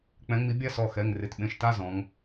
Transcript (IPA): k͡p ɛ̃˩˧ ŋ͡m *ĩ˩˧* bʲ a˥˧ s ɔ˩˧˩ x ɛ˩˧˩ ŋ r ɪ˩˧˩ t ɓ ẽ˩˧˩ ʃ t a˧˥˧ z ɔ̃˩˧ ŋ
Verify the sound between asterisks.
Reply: incorrect: i˩˧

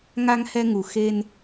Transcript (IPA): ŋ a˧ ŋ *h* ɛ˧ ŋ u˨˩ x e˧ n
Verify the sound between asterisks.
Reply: correct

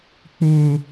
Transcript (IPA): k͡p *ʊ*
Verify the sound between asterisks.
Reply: correct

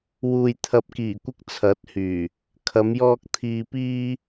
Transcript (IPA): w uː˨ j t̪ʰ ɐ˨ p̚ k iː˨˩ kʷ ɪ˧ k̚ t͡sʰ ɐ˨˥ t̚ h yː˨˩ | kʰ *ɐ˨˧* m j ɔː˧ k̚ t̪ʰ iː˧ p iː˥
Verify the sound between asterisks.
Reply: correct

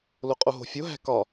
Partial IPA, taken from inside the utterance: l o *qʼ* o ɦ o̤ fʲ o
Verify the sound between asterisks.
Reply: correct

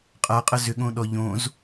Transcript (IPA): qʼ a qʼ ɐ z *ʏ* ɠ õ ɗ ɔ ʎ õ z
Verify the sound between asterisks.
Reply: correct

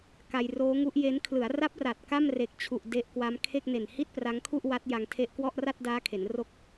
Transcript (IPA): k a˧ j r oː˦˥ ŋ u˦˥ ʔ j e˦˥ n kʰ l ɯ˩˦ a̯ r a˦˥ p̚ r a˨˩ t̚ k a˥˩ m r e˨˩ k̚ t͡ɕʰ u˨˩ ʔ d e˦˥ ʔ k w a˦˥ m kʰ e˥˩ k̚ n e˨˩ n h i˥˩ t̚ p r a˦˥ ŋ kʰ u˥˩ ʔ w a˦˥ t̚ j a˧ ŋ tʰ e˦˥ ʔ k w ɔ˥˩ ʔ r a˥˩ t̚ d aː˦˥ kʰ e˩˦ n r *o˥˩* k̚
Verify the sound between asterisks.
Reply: correct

